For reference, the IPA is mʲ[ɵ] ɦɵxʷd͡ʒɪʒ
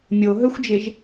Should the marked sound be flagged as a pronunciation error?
yes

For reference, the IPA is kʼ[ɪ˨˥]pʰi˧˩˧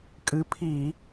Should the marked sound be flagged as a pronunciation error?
yes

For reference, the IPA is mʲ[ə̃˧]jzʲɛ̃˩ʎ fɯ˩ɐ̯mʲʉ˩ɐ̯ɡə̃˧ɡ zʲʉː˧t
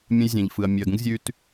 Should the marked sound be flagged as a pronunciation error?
no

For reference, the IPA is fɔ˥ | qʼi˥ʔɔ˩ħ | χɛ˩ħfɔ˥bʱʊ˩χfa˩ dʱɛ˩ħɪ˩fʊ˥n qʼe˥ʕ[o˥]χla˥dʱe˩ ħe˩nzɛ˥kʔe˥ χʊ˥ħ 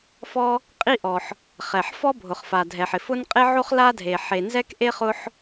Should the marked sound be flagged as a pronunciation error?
no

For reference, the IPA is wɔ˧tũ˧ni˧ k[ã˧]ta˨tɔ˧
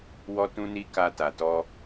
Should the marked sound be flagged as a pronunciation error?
yes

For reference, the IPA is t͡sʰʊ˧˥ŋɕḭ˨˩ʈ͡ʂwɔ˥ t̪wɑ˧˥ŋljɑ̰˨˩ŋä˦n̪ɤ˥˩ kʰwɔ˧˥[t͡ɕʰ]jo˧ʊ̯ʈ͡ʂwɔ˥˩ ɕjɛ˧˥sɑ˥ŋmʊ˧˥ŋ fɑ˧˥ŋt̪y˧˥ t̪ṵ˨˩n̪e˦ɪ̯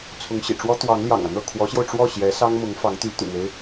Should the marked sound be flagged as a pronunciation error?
yes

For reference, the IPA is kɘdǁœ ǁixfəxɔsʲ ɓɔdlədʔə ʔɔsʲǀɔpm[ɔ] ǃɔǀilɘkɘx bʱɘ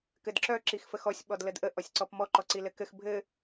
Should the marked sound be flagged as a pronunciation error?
no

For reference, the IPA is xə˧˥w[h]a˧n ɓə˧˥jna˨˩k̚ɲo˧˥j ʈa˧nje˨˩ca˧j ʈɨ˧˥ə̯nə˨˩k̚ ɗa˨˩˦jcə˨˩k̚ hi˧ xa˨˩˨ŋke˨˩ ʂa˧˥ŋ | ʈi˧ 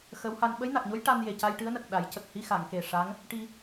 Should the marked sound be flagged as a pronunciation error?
no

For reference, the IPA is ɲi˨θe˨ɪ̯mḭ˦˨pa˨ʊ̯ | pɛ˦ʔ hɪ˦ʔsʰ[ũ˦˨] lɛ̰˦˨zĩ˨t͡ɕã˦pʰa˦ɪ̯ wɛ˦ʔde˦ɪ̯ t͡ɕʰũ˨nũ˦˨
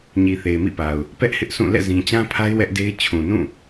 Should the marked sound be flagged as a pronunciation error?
no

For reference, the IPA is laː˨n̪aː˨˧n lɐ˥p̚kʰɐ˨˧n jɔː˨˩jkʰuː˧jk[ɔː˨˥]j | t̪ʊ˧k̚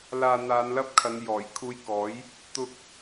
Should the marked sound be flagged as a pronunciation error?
no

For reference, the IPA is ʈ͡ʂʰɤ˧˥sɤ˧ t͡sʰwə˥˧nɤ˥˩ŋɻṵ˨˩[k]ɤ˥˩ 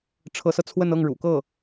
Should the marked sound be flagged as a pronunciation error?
no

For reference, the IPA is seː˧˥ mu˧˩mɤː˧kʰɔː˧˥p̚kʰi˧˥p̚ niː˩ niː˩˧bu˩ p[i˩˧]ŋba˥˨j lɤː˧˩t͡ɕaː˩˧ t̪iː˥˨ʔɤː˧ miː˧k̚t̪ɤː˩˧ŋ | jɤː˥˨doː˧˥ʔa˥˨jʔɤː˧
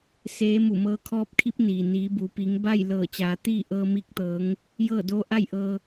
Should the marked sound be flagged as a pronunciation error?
no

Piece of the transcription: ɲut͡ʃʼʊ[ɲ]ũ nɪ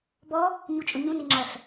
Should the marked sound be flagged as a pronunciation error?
no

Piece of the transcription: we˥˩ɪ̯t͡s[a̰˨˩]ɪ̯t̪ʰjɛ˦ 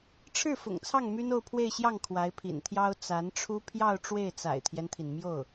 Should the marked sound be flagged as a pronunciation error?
no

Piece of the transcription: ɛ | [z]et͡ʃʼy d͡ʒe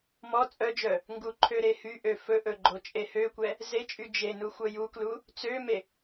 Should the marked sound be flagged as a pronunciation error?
no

